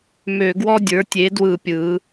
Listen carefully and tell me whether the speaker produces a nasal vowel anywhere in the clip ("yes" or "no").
no